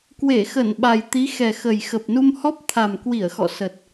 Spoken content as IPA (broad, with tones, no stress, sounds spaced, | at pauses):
k w e˧˩ x ə˧˩ n ɓ a˨˩ j t̪ i˨˦ x ɛ˨˩ x ə˨˩ j x ə˨˩ p̚ n u˧ m h ɔ˦˥ p̚ t̪ʰ a˨˩ m k w i˧˩ ə̯ x ɔ̰˧˨ s ə˨˩ t̚